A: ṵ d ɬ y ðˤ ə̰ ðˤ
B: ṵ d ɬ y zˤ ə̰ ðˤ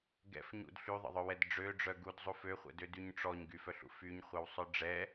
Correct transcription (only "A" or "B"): A